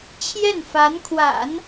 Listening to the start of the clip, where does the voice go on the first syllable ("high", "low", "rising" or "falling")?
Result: falling